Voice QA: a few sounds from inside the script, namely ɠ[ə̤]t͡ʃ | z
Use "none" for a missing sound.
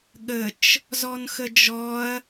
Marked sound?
ə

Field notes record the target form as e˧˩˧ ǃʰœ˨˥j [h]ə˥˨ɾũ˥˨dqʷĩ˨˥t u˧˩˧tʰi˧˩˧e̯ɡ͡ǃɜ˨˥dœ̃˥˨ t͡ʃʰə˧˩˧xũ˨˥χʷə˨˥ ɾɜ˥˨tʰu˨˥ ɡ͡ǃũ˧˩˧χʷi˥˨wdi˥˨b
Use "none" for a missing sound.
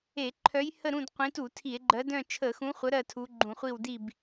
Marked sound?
h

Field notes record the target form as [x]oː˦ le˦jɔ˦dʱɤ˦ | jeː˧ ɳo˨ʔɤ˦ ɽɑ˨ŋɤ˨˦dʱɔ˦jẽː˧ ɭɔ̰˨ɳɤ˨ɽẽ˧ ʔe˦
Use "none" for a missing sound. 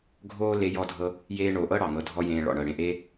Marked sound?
ɡʱ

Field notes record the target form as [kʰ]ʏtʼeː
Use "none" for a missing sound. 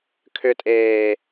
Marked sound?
kʰ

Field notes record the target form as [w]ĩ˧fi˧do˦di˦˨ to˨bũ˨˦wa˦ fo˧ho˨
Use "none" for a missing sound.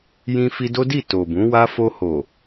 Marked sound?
j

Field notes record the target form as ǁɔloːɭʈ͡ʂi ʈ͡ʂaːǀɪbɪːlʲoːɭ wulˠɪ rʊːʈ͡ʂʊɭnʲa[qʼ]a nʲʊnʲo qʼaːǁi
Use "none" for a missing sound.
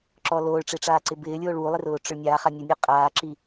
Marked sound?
χ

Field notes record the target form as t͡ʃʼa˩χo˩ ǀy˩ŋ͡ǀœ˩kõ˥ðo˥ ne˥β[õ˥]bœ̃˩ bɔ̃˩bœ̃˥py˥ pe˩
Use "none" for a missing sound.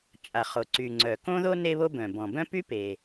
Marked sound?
o˥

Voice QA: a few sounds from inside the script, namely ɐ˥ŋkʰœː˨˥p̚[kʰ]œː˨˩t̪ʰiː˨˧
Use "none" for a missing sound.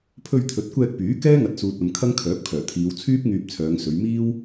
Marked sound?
kʰ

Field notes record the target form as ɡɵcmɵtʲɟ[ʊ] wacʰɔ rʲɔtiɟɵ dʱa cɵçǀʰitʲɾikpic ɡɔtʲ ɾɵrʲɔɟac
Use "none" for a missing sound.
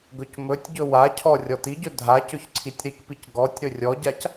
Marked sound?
ɵ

